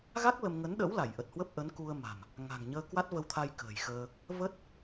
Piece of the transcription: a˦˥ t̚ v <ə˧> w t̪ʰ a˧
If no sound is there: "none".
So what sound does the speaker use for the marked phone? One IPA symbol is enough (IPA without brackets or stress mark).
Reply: ə˧